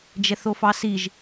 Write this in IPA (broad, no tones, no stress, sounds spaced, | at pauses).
d͡ʒ ɛ θ o f ɑ s i ʒ